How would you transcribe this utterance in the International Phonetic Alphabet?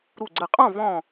ɾu˧˩ɡ͡ǀə˧˩qʼɔ̃˥˨ vɔ̃˧˩

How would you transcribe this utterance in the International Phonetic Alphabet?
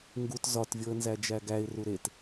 ŋɡut zɒtvʲoə̯nzæ d͡ʒæɡæɪ̯ ruɾet

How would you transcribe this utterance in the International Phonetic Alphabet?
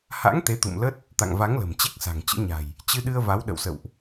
ha̰˧˥ŋ t̪e˨˦t̪ṵ˧˨mlə˦˥t̚ | t̪a̰˧˨ŋva˨˦ŋlə̤˨˩m t͡ɕe˦˥k̚sa̤˨˩ŋt͡ɕɨ̰˧˥ɲa̤˨˩j | t͡ɕɨ˧ɗɨ˧ə̯ va˨˦w ɗə̰˧˨wsə̰˧˨wʔ

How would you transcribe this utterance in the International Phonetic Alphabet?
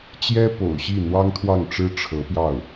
t͡ɕjɛ˥po̰˨˩ʊ̯ɕi˥˩ n̪wɑ˥ŋt̪ʰwɑ˥˩ŋʈ͡ʂɻ̩˥ ʈ͡ʂʰɤ˧˥pjɑ˥˩ʊ̯

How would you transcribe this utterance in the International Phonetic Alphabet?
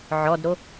ʕɔdɾo

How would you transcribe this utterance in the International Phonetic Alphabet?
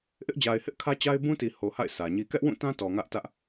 ʔɪ˦ʔd͡ʑa˨ɪ̯hɪ˦ʔ kʰä˦t͡ɕa˦ɪ̯ bũ˦ti˨ ho˨ha̰˦˨ɪ̯ sä˨ɲi˦ kɛ˦ʔwũ˦˨tã˦ tɔ˨ŋä˦ʔtä˦ʔ

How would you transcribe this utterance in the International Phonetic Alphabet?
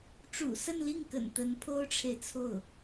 ʈ͡ʂṵ˨˩sə˥˧nli˥˩ŋkə̰˨˩n t̪ə˧˥npʰo˥ʊ̯ʈ͡ʂʰe˨ɪ̯t͡sʰo˥˩ʊ̯

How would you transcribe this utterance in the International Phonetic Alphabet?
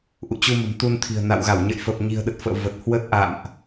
ʔṵ˧˨t͡ɕu˧mə̤˨˩m t̪u˧nt̪ʰi̤˨˩ə̯ na̰˧˨w ɣa˧˩wɲə̰˧˨j fə˨˩p̚ɲi̤˨˩ə̯ɗə˨˩t̚ fə̰ː˧˨və˨˩t̚hwə˦˥t̚ʔa̰˧˨mʔ

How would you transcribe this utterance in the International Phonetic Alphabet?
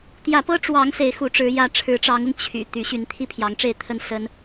t̪jä˨˦pɤ˦ʈ͡ʂwɑ˨˦ŋ se˨˦ɪ̯xu˨˦ʈ͡ʂɻ̩˨˦ jä˨˦ʈ͡ʂʰɻ̩˨˦ʈ͡ʂɑ˨˦ŋʊ˧ŋ t͡ɕʰy̰˨˩ t̪y˨˦ɕy˨˦n t̪ʰi˥˨pʰjɑ˨˦ŋʈ͡ʂe˥˨ɪ̯t̪ʰə˥˨n sə˦n

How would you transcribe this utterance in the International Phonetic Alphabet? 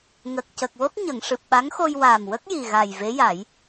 ŋə˨˩k̚cə˨˩k̚wo˦˥t̚ ɲə˨˩˨ŋʂɨ˨˩p̚ɓa˧˥ŋxo˧j waː˨˩mwə˦˥k̚ ji˨˩ɣa˨˩jve˧˥ja˨˩˦j

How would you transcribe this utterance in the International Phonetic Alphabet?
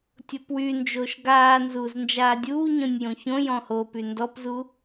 tʲopwynd͡ʒoːʃ ɡaːnzuːz nd͡ʒaːdʲuːɲõnʲ jõçõjɔ̃ hopy ndɔpzu

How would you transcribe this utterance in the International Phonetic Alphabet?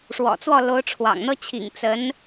ʂwɔ̰˨˩t͡swɔ˥˩ lo˧˥ʊ̯ʈ͡ʂʰwɑ̰˨˩ŋ n̪ɤ˥˩t͡ɕʰḭ˨˩ŋ t͡sə˧˥n

